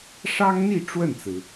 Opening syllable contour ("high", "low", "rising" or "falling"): high